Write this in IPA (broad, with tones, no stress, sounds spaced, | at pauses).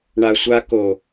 ɳ a˨ sʷ a˧ k o˨